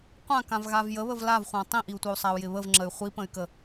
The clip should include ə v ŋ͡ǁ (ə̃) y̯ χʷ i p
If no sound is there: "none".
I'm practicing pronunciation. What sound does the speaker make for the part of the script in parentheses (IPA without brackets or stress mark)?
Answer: ə